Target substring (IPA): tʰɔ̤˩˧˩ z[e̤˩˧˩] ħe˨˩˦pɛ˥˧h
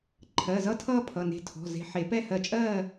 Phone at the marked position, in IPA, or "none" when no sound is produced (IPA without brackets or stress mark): e̤˧